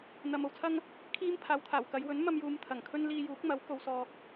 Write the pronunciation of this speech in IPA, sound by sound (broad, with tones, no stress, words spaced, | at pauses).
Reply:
n̪ɐ˨m o˧wt͡sʰɐ˥ŋ | kʰiː˥mpʰaː˨wt̪ʰaː˨˩wkɐ˨˧j wɵ˨˥nmɐ˧mjuː˨m t̪ʰɐ˨˩ŋ kʰɵ˥n liː˧juː˨˥k̚mɐ˨˥w ko˥wsɔː˥k̚